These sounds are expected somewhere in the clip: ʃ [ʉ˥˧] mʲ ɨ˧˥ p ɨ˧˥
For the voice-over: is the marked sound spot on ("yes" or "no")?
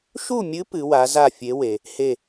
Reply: no